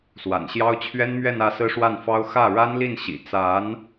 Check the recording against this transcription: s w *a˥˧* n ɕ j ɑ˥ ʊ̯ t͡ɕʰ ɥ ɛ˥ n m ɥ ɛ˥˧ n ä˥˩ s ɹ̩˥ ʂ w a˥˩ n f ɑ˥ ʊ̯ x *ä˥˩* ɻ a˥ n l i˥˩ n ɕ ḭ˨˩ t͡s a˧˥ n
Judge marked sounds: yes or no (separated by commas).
no, yes